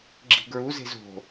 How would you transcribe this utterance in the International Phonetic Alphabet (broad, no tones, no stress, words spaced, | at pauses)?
ɡ͡ǁi̤ɡɹuze̤z o̤